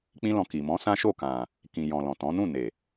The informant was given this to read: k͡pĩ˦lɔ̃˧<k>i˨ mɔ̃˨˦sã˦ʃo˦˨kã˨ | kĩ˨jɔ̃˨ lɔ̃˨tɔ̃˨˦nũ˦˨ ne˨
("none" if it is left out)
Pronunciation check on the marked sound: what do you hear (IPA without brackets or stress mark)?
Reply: k